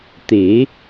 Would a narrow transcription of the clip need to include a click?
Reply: no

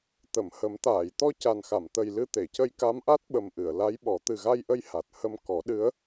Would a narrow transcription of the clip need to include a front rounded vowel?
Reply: no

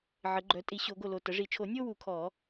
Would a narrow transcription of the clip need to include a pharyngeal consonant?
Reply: yes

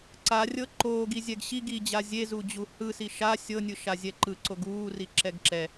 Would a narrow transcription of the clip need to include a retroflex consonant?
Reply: no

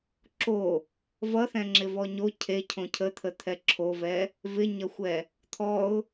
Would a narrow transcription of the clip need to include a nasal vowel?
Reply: yes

